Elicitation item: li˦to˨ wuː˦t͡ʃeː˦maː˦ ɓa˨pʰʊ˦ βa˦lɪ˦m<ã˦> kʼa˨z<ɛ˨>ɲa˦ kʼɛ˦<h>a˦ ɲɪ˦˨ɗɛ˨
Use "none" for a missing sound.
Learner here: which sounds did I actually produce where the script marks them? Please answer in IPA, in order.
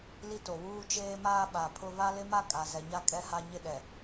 a˦, ɛ˨, h

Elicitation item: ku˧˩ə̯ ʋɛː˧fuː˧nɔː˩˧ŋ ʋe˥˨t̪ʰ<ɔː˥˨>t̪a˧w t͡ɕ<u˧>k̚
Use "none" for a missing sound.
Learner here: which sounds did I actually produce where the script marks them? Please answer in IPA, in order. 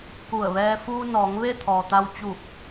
ɔː˩, u˧˩

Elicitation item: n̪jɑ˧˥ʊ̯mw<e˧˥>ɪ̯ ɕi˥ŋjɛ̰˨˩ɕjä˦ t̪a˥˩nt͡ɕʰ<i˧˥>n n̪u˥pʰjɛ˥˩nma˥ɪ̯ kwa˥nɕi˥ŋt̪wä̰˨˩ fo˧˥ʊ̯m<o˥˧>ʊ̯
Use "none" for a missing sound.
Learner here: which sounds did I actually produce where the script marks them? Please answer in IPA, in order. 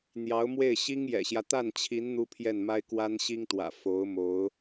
e˥˩, i˧˥, o˧˥

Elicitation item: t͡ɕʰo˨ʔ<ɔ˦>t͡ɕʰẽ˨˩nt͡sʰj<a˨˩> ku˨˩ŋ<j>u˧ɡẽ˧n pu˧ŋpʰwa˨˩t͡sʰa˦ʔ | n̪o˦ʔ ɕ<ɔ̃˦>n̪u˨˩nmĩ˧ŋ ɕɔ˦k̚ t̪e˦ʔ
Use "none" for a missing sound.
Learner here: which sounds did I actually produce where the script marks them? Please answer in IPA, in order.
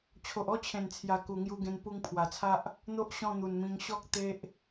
ɔ˥˧, a˨˩, j, ɔ̃˥˧

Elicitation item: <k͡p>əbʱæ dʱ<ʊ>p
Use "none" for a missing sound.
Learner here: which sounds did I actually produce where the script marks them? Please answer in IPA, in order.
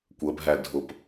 kʷ, ʊ

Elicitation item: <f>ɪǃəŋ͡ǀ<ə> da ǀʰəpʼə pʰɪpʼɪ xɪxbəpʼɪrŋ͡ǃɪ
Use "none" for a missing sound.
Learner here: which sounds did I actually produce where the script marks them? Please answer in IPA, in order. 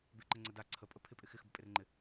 b, ə

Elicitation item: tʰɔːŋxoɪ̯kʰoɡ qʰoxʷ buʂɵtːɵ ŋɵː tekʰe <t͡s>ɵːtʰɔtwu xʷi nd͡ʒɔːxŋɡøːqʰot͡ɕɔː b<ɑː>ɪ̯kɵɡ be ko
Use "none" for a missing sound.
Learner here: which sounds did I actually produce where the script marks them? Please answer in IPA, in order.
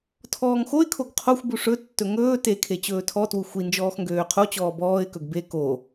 t͡ɕ, ɔː

